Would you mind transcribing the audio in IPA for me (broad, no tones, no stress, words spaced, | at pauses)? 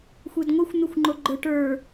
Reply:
xʷedŋʷɛxʷ n̪exʷŋ͡ǃoɡ͡ǃə˞ ʈə˞